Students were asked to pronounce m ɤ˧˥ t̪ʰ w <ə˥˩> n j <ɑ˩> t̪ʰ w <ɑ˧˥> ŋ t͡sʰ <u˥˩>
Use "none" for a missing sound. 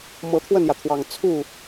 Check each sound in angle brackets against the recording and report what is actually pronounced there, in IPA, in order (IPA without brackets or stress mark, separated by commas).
ə˥˩, ä˩, ɑ˨˩, u˥˩